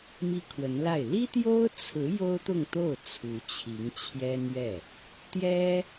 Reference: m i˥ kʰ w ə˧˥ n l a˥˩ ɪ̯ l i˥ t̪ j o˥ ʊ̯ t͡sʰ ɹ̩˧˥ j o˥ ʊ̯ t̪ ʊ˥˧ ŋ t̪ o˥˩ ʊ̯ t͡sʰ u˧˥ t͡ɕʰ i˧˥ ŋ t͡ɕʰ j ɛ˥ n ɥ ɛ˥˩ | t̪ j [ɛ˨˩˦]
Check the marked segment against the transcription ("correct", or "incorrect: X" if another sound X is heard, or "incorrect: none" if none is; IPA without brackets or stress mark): incorrect: ɛ˥